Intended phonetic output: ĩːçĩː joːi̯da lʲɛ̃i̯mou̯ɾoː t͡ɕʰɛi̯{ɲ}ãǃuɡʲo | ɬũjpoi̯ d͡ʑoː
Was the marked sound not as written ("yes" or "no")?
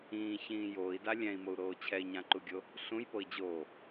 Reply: no